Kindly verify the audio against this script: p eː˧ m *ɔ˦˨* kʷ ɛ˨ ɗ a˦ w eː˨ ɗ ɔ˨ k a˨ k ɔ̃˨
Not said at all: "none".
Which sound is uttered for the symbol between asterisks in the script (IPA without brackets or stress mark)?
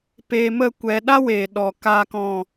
ə˦˨